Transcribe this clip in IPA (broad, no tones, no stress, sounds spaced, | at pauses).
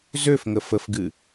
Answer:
z ø f ŋ ə f ə f ɡ ɨ